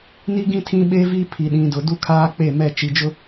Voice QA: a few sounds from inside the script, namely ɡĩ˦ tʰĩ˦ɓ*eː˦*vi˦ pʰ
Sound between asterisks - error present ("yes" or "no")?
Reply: yes